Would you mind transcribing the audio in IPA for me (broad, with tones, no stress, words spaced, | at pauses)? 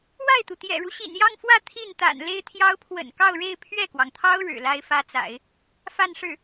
wa˥˩ɪ̯t̪u˩t̪jɛ̰˨˩ɻu˦ ɕḭ˨˩njɑ˥˧ŋfwä˥˧ t̪ʰi˥˩nt̪a̰˨˩n le˥ɪ̯t̪ʰjɑ˥ʊ̯ pʰwə̰˨˩nkɑ˥˧ʊ̯ɻe˥˧ɪ̯ pʰɥɛ˥˩kwɑ˩ŋt̪ʰɑ˥ʊ̯ ɻɻ̩˨˩la˥ɪ̯fä˥t͡sa̰˨˩˦ɪ̯ | fa˥˧nʂɻ̩˥˩